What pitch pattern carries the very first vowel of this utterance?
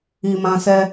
low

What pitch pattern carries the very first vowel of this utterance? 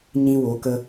high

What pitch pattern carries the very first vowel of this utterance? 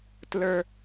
high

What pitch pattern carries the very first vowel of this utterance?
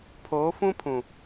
rising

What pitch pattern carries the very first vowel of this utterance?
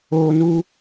high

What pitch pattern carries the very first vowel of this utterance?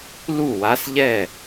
falling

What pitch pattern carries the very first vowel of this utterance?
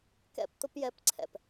high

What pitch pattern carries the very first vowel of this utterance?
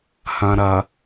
low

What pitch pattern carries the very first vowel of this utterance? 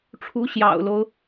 rising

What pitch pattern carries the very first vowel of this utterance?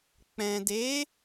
low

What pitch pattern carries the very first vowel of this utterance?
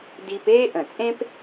high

